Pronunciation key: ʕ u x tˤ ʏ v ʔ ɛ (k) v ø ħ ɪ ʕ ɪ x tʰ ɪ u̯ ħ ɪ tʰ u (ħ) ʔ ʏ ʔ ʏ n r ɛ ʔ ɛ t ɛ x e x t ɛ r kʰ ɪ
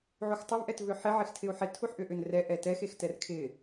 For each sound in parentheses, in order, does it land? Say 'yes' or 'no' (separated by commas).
no, yes